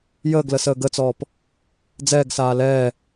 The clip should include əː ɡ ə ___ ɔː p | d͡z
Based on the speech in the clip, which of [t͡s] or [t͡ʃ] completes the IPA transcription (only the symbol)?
t͡s